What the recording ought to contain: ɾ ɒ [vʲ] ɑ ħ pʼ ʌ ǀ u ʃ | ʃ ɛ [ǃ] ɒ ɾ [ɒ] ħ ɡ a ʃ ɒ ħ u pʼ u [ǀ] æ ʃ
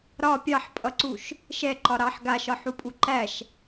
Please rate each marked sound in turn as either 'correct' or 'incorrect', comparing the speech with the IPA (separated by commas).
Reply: incorrect, correct, incorrect, incorrect